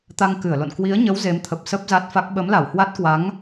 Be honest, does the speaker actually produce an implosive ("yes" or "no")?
yes